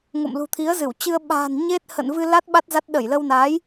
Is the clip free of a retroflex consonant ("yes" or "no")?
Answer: yes